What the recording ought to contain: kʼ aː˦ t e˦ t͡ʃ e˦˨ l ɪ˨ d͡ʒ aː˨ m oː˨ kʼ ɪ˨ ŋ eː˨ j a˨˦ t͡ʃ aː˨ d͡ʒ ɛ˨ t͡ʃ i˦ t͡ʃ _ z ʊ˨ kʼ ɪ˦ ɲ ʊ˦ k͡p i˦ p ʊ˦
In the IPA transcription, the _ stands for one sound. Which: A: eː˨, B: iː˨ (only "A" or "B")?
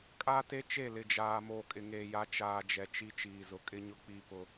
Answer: B